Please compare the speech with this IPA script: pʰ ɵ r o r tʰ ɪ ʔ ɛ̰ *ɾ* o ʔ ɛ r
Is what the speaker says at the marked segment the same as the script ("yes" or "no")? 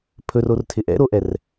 yes